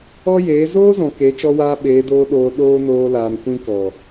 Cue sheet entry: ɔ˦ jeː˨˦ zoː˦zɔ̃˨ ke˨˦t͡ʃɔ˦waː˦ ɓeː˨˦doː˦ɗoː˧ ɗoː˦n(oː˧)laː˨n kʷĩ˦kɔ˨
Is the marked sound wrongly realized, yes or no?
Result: no